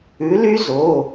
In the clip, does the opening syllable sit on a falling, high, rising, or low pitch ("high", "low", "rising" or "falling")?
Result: rising